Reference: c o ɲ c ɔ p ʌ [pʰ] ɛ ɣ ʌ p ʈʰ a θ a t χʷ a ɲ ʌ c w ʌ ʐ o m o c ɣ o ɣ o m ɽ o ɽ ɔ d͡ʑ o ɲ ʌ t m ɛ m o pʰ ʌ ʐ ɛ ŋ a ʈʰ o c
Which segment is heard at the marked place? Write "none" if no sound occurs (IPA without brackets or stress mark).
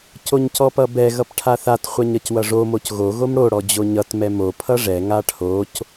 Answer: b